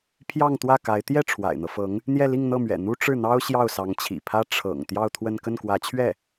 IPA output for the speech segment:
pʰjɑ˥˧ŋt̪wä˥˩ka˧˥ɪ̯ t̪jɛ˥˩ ʈ͡ʂʰwa̰˨˩ɪ̯n̪ɤ˦fɤ˧˥ŋ | n̪jɛ˥˧li˥˧ŋn̪ɤ˥˩mɥɛ̰˨˩ n̪u˥ʈ͡ʂɻ̩˥˩n̪ɑ˥ʊ̯ ɕjɑ˥˩ʊ̯sɑ˧˥ŋt͡ɕʰḭ˨˩pʰä˥ ʈ͡ʂʰɤ̰˨˩ŋ t̪jɑ˥˧ʊ̯t̪ʰwə˥˧n kə˥˩nkwä˧˥t͡ɕʰɥɛ˥˩

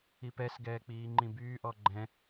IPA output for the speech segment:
ipɛs ɡɛːk͡piːŋ͡ǃĩbyː ʔɔɡ͡ǃɛ̃

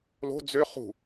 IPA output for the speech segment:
lo̤ d͡zø χṳ

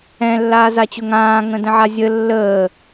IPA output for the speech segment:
ɛ̃lːaːzat͡ɕʊ ŋãːŋə̃də̃ʕa zʲə lːəː

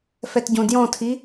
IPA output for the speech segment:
fɛtɟõdjɔ̃tʰi

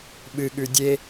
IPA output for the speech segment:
ɓɨɠʉ dʲe

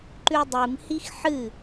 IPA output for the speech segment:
ǃʉdˤɨmhix ħɨ

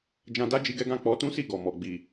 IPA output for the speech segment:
d͡ʒã˧da˦ d͡ʒi˦ɡɛ˦ ɡã˦˨k͡pɔ˨˦tũ˦si˦˨ ɡɔ˨ mɔ˨ɡ͡bi˨

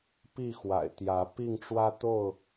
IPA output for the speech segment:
pi˥˨xwa̰˨˩ɪ̯t̪jä˨˦pi˥˨ŋ ʈ͡ʂwä˦t̪o˥˨ʊ̯

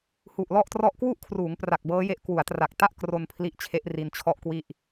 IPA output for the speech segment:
hu˨˩ʔlɔ˥˩ʔtrɔ˥˩ʔ kwu˥˩ʔkʰruː˩˦ŋpra˨˩k̚ bɤː˦˥je˦˥ʔ kwu˩˦a̯tra˨˩k̚ta˥˩ʔ kro˧n pʰli˦˥ʔt͡ɕʰe˦˥ʔri˧n t͡ɕʰɔ˥˩ʔkwi˥˩ʔ

